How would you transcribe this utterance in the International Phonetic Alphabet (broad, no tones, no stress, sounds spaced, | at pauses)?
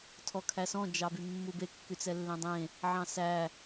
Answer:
tʰ ɔ kʰ æ s ɔ̃ d͡ʒ ɑ b y mː u b e kː y t͡s ɛ lː ẽ dˤ ẽ | ʕ ɑ̃ s æ